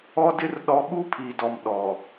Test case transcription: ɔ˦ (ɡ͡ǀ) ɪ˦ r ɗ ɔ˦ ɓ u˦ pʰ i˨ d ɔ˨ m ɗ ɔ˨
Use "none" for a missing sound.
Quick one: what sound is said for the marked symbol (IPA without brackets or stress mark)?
d